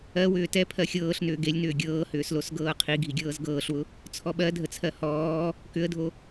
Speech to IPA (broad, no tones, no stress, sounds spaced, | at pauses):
ɜ w ʏː t ɛ pʰ ɜ xʲ ɤː ɬ n ʏː ɡ e lʲ n ʏː ɡʲ ɤː h ʏː s l o s ɡ ɤː qʰ i ɡʱ i ɡʲ ɤː z ɡ ɤː ɬ w ʊ | t͡sʰ ɔ ɓ ɜ dʱ ə t͡sʰ ɜ h ɔː | k ʏ ə̯ dʱ o